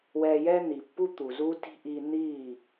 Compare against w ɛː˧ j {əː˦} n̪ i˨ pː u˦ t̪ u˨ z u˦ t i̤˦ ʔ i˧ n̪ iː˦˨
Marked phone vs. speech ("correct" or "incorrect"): incorrect